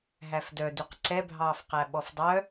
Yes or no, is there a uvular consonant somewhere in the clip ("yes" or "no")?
yes